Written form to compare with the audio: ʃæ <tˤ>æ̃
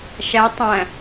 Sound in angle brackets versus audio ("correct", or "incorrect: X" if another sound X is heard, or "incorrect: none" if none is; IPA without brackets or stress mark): correct